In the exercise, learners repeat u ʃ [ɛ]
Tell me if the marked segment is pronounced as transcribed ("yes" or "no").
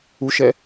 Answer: yes